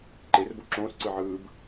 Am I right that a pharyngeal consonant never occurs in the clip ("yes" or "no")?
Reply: no